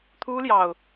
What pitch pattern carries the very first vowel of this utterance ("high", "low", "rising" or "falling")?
high